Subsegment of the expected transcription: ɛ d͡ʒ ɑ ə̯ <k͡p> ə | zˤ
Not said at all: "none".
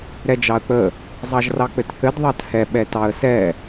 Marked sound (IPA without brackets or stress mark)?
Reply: k͡p